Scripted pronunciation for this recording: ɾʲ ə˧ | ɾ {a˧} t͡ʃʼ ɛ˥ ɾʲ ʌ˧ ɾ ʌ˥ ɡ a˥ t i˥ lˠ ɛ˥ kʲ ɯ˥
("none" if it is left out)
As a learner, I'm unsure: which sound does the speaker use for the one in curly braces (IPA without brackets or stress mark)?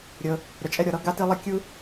ə˧